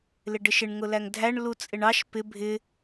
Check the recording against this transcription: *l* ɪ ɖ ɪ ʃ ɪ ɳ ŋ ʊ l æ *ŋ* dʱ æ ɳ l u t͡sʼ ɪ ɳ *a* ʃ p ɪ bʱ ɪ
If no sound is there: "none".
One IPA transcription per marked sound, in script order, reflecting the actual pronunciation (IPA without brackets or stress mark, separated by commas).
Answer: l, ŋ, ɑ